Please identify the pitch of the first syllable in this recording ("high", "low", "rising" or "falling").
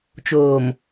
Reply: low